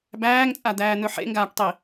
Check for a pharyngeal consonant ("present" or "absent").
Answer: present